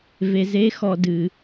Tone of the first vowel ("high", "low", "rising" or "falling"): low